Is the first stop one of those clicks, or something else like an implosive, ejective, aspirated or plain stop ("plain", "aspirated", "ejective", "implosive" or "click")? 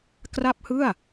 plain